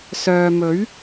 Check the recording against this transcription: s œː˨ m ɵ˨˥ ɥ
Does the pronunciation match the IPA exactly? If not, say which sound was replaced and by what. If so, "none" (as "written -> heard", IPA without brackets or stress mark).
none